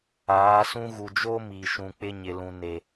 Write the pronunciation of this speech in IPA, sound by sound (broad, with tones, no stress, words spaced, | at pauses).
aː˨˦sũ˦ ɣu˨d͡ʒo˦ miː˨ʃũ˨k͡pɪ˦ ɲɪ˨lũ˨ne˨